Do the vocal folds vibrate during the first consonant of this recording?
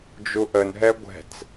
yes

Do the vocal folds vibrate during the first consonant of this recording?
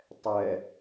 no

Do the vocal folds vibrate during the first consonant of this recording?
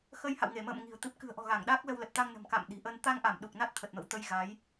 no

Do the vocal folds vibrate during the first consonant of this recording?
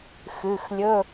no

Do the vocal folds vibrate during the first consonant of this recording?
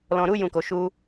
yes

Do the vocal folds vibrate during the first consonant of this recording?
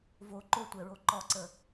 yes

